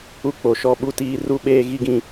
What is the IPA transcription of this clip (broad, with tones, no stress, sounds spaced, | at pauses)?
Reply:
u˦ k͡p o˨ ʃ ɔ˦ ɓ u˦ t iː˦ r u˦ ɓ eː˦ ɣ i˦ ɡ ĩ˦